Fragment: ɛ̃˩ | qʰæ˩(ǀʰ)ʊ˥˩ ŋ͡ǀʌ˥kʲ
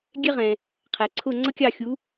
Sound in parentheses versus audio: correct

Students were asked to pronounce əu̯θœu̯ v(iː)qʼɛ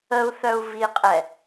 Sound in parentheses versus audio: incorrect: i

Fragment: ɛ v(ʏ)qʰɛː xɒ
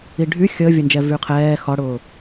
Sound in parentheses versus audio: incorrect: y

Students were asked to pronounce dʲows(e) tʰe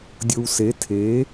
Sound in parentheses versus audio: correct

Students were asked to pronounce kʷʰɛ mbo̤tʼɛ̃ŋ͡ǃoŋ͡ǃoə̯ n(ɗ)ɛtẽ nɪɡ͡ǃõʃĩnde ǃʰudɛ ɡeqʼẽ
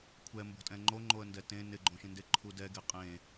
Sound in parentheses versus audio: incorrect: d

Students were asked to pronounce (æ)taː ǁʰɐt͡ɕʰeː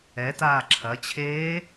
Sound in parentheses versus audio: incorrect: ɛ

